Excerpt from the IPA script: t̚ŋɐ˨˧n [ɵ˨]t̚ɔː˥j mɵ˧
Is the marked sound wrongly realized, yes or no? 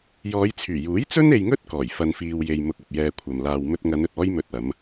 no